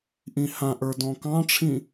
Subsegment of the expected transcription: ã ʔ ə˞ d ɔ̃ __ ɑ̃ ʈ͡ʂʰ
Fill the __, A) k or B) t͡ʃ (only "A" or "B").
A